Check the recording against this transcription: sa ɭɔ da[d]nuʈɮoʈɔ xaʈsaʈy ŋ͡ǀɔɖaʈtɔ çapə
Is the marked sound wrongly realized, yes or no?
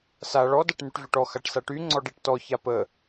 yes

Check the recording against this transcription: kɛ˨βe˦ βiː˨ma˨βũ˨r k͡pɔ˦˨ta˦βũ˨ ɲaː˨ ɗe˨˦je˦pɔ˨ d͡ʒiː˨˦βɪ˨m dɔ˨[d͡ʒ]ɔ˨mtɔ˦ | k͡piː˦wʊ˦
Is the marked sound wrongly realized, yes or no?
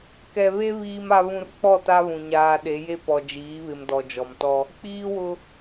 no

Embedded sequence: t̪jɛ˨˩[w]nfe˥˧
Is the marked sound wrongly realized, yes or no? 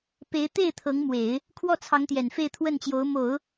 yes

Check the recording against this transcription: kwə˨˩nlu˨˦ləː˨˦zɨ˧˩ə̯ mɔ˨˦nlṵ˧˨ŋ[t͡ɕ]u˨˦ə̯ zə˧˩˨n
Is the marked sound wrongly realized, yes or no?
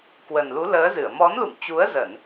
no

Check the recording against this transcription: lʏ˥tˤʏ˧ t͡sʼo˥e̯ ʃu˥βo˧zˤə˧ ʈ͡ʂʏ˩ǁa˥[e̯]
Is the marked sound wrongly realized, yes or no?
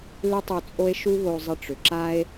no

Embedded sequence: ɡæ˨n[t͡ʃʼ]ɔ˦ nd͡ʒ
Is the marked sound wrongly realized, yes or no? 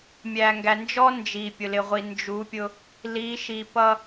yes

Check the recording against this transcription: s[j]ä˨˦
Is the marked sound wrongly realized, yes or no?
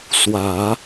yes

